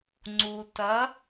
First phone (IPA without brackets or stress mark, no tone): ŋ͡ǀ